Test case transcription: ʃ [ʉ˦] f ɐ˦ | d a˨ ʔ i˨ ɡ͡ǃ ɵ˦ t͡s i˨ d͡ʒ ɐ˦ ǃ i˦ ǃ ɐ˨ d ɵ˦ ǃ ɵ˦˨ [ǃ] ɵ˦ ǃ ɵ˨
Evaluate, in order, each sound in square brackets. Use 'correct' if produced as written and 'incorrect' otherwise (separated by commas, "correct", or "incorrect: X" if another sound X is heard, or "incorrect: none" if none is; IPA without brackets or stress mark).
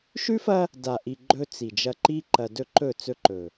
correct, incorrect: t͡s